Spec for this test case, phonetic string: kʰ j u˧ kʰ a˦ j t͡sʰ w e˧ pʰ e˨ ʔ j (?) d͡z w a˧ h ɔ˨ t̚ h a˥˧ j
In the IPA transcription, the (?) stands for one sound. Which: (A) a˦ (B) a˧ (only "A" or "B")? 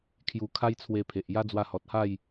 A